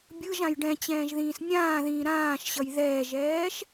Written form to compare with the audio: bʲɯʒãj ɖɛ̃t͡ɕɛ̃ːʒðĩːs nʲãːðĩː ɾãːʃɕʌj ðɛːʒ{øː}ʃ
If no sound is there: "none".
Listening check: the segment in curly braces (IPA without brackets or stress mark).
ɛː